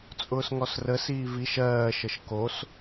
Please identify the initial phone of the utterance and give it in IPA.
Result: t͡sʼ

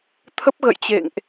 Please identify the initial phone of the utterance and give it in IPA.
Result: t̪ʰ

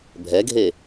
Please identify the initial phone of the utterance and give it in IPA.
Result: bʱ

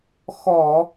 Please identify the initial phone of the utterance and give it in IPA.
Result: x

